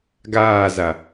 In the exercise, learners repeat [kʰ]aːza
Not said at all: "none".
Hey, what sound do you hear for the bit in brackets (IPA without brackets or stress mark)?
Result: ɡ